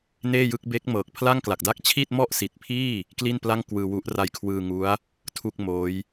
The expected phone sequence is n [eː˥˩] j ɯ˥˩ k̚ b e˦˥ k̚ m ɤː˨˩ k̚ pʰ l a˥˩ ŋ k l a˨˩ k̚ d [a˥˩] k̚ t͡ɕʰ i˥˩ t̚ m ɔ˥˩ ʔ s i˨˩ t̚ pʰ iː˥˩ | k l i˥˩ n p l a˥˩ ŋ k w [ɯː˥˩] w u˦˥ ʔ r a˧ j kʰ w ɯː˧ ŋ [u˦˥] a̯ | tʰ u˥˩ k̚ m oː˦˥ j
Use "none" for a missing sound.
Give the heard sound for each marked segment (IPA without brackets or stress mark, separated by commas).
eː˥˩, a˥˩, ɯː˧, u˦˥